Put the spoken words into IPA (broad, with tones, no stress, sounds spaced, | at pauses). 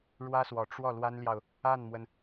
ɻ w ä˥ s w ɔ˨˩ ʈ͡ʂ w ɔ˥˩ l w a˥ n l j ɑ˨ ʊ̯ | a˥˩ n m w ə˩ n